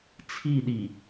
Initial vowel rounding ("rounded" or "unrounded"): unrounded